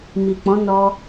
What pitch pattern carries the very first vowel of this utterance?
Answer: low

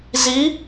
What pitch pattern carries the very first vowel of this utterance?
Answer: rising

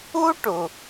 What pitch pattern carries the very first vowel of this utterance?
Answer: high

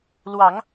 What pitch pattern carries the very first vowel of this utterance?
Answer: low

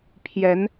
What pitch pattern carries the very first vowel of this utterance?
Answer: rising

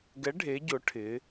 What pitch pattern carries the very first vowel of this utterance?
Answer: rising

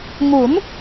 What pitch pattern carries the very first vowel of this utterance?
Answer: rising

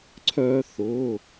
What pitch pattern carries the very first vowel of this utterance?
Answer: high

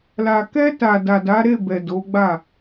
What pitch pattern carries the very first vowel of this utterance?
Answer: low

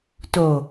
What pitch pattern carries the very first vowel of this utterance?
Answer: low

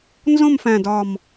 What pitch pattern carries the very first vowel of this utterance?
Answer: falling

